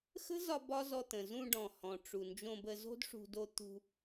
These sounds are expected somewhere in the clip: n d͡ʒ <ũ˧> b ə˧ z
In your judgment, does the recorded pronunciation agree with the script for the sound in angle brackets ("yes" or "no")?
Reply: no